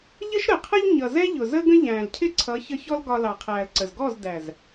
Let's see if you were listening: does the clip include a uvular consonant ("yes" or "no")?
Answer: yes